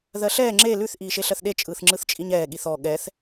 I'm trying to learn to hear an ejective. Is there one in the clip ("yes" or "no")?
yes